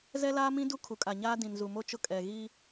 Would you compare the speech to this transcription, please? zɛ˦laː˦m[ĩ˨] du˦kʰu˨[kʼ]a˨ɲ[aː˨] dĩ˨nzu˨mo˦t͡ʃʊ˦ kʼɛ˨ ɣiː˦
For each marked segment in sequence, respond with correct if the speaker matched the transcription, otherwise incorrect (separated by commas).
incorrect, correct, incorrect